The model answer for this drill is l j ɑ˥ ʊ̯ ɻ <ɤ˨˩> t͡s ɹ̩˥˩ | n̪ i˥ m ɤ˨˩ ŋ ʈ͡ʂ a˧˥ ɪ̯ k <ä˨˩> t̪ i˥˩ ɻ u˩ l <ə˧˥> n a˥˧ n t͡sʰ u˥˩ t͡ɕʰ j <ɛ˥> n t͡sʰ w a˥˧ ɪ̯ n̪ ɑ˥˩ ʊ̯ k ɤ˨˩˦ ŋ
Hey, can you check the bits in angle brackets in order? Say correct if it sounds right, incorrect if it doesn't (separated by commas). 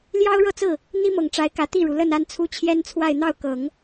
incorrect, correct, incorrect, correct